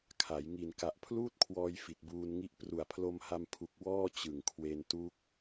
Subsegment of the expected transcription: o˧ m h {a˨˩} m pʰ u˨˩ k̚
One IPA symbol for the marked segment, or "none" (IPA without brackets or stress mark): a˧